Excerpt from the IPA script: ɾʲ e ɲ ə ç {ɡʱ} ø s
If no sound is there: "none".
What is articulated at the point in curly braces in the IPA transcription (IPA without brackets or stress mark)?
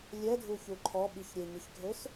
ɡʱ